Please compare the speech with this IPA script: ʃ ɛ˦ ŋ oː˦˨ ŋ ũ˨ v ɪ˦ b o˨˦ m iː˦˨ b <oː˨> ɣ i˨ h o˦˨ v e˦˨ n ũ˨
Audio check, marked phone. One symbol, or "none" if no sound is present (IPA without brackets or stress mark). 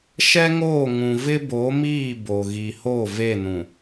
o˨